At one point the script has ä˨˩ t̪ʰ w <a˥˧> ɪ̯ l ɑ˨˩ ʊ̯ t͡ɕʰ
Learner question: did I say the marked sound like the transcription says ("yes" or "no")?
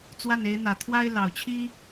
no